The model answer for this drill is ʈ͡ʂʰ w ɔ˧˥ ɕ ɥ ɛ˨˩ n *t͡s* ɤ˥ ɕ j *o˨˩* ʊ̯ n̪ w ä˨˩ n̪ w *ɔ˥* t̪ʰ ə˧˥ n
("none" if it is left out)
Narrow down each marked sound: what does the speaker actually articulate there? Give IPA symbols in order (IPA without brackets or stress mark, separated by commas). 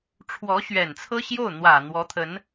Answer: t͡sʰ, o˥˩, ɔ˧˥